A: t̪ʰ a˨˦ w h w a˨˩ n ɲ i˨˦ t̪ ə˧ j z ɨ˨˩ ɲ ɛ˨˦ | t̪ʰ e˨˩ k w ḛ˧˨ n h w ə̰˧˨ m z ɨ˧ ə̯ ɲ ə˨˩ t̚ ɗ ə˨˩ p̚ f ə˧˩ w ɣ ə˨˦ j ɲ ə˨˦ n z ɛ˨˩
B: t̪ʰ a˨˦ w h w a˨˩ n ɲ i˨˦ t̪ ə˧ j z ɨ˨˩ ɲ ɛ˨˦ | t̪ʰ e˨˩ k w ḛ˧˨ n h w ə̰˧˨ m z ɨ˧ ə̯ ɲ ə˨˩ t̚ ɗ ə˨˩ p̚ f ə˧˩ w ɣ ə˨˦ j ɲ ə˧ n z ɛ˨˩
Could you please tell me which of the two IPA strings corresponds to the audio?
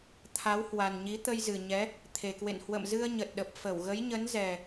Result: A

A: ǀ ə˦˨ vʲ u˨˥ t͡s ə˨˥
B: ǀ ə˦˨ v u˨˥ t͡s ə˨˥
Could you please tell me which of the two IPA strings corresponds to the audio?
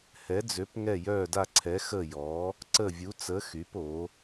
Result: A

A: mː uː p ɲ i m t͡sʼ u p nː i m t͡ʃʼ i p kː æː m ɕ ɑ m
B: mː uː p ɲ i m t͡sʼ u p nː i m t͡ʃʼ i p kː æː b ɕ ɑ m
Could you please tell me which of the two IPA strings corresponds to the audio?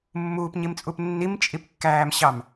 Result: A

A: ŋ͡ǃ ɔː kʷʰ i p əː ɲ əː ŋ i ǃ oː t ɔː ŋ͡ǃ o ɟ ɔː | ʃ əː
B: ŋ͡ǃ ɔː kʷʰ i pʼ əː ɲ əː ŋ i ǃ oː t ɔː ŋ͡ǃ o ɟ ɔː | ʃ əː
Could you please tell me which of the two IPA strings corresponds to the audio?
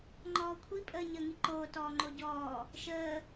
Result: B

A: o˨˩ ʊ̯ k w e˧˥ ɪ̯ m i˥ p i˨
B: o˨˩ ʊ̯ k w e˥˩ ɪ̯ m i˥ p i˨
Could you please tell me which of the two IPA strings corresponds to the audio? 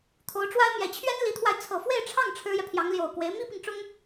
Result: A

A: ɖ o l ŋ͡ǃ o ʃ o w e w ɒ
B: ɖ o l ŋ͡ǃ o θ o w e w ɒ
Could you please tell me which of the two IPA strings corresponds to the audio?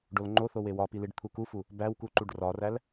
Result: B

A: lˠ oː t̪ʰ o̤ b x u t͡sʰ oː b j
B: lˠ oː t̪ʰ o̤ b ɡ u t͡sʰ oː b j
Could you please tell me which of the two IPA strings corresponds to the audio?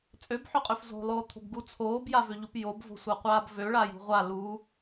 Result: B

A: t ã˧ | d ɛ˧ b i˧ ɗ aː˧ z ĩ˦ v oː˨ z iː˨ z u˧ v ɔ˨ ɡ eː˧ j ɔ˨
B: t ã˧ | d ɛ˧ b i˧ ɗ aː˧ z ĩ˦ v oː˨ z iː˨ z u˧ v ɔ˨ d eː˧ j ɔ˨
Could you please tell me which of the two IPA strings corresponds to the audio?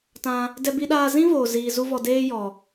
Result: B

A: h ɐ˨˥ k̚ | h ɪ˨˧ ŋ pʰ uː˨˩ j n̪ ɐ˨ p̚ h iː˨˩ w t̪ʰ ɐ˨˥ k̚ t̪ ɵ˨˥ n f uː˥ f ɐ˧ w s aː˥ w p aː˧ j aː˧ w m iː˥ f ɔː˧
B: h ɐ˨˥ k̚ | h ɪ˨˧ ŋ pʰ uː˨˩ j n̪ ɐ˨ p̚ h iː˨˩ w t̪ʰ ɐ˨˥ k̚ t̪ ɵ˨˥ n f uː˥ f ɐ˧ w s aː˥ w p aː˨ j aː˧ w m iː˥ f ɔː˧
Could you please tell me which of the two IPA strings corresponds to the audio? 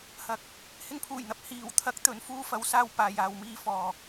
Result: A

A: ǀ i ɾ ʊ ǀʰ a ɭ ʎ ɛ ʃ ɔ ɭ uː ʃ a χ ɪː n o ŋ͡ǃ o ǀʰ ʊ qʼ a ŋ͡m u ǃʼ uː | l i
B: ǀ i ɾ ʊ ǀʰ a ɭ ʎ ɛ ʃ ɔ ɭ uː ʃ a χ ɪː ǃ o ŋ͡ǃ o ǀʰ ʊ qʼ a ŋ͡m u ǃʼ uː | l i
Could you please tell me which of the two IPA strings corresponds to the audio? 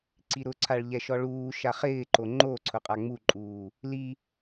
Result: B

